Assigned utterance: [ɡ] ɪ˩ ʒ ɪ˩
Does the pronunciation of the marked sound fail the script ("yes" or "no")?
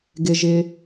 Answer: no